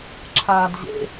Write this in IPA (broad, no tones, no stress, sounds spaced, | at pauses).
ǁʰ aː d ʑ ḛ